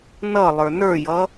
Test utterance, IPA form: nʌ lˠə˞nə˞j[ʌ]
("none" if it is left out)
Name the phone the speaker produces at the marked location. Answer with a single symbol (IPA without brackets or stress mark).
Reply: ʌ